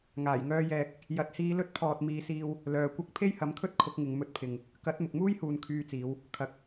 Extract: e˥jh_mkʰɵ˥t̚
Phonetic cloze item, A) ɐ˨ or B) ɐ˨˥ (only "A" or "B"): B